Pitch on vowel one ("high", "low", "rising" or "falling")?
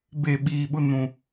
falling